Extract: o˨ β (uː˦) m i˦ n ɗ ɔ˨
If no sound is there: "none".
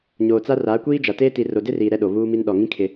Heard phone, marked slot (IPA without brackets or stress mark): uː˦